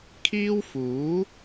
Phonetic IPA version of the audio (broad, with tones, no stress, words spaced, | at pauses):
kʰiː˥wfuː˨˥